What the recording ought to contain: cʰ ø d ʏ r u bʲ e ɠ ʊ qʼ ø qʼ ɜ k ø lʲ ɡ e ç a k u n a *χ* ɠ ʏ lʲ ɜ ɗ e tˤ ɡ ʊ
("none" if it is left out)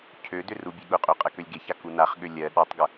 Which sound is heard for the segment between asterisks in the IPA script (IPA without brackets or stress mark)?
χ